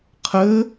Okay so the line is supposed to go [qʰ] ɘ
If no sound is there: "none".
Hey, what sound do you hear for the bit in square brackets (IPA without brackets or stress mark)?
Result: qʰ